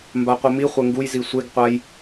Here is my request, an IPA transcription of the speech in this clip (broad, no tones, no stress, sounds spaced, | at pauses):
m b a qʷ ɐ m i χʷ e ŋ ɡ u j z i sʷ e ɡ qʷ a j